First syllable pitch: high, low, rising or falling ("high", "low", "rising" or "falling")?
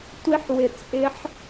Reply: high